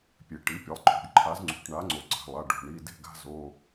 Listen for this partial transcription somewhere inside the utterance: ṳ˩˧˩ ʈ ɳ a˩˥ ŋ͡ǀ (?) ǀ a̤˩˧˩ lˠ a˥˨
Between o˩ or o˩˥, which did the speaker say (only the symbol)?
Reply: o˩